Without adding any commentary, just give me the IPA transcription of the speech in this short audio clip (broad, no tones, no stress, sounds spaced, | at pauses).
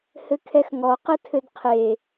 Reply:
h ɘ kʰ ɛ x ŋ ɔ q ɘ tʰ ɘ d qʰ e